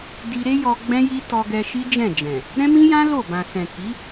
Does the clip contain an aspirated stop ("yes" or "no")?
no